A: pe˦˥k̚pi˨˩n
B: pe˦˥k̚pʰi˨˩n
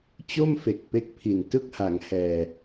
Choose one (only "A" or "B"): B